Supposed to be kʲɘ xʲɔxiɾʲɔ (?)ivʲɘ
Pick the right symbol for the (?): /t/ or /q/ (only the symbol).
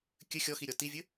t